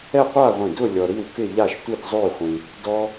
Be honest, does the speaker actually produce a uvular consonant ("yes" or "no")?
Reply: yes